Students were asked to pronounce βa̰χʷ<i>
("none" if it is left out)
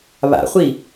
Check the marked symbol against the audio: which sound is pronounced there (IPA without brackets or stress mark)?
i